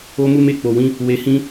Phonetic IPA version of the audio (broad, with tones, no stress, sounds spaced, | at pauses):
o˧ m u˧ m e˧ k͡p o˨ w ĩ˨˦ | w e˨ h ĩ˧